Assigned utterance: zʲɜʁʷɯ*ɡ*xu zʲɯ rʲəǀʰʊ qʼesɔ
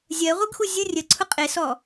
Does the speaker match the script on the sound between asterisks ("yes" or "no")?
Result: yes